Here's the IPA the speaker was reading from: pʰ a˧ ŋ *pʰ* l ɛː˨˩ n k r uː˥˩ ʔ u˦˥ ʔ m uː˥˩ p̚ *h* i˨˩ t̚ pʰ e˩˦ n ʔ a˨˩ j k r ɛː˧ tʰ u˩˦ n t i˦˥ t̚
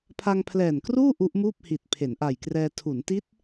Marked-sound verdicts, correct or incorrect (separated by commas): correct, correct